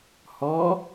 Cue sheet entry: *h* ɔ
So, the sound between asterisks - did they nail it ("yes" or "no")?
yes